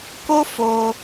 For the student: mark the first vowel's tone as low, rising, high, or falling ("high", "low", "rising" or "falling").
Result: high